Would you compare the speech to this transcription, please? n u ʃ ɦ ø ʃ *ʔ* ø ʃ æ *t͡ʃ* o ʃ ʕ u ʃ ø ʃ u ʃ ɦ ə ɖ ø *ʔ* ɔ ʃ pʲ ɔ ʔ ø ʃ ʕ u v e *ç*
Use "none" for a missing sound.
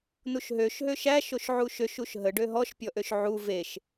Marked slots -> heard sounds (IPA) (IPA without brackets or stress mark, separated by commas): ɦ, ʃ, ɦ, ʃ